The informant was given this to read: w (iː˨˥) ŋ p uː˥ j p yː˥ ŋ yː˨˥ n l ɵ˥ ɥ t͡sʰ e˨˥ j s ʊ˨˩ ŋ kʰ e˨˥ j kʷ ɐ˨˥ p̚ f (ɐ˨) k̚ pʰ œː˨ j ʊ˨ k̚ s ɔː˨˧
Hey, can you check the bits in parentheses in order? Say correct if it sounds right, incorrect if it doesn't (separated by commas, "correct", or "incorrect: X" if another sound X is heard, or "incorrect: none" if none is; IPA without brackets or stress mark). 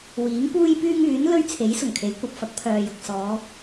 correct, incorrect: ɐ˨˥